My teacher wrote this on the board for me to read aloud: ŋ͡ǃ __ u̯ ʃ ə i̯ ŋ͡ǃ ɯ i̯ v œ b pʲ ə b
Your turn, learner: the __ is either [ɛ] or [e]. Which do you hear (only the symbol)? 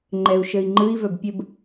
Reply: ɛ